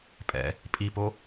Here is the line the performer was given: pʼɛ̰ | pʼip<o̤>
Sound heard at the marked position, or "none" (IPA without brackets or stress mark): o